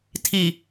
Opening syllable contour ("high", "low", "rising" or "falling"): low